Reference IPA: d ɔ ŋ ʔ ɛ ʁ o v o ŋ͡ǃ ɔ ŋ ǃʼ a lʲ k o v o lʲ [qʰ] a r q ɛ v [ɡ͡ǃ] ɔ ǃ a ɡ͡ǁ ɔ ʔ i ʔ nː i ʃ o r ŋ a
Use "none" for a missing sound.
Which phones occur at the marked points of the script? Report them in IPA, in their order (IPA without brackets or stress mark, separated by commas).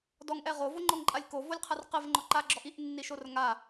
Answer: qʰ, ŋ͡ǃ